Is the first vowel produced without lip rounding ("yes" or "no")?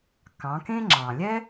yes